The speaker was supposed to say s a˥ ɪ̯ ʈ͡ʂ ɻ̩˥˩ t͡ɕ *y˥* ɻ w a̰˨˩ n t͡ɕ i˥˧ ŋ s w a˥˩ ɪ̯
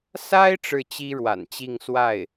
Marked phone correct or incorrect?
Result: incorrect